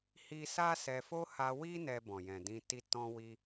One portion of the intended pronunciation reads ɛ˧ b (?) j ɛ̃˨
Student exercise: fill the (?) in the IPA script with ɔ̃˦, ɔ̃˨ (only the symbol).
ɔ̃˨